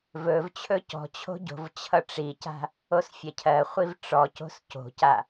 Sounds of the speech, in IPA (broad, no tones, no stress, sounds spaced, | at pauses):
v ɵ v t͡ɕʰ ɵ c ɔ̤ t͡ɕʰ o̤ ɟ o̤ v t͡ɕʰ ʌ ʈ͡ʂ i c a̤ | o s fʲ ɜ cʰ ɜ χʷ i v ʈ͡ʂ ɔ c o̤ s c o̤ c a